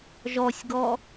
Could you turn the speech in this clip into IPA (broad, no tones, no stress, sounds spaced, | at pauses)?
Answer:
ʒ ɔ sʲ ɡ ɔ